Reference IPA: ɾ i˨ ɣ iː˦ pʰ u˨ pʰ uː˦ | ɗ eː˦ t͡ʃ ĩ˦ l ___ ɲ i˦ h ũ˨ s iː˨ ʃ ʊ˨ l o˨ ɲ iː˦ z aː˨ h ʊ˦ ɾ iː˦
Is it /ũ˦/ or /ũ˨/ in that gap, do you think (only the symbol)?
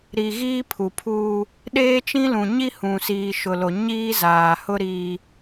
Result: ũ˨